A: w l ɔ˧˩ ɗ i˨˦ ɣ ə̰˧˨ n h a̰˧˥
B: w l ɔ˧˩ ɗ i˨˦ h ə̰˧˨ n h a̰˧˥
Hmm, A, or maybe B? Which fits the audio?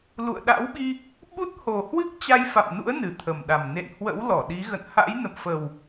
A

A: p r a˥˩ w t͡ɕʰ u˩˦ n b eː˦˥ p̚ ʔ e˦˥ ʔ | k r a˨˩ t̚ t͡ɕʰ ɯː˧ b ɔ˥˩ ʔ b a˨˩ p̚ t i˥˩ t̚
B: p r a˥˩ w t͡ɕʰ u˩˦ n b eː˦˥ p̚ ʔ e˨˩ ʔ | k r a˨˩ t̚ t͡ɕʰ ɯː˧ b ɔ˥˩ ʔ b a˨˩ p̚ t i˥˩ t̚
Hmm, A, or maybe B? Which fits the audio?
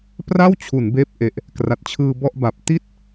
B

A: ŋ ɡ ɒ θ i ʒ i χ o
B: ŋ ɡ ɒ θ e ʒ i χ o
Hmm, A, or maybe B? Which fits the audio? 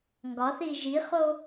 A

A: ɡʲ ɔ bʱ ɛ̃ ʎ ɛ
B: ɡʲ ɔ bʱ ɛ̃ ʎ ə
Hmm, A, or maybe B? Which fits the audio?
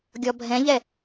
A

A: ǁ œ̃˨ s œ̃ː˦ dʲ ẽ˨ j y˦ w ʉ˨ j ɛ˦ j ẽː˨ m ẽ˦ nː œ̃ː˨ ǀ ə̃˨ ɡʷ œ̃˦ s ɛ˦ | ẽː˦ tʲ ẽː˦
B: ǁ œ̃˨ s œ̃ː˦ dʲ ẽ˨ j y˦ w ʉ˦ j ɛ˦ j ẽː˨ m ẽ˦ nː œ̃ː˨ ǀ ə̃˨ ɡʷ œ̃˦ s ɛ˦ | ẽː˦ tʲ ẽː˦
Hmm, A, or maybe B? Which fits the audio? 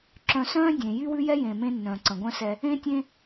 B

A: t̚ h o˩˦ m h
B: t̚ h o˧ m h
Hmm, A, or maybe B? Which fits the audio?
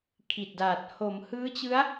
A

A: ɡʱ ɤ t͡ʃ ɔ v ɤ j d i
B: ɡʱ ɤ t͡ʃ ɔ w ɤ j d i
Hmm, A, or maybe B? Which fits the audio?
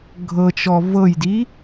A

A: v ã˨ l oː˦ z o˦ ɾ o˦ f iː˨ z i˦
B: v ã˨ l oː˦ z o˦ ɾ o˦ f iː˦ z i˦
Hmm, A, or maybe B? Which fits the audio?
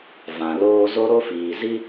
A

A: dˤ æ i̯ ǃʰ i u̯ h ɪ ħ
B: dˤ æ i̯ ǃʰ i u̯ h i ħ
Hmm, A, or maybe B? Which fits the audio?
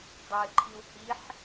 B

